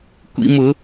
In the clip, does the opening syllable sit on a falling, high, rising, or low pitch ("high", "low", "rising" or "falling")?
high